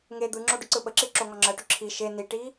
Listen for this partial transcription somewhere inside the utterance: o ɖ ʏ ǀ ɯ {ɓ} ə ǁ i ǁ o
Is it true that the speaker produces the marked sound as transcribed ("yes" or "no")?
yes